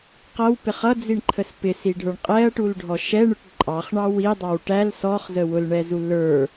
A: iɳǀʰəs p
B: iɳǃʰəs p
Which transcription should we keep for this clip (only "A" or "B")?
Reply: B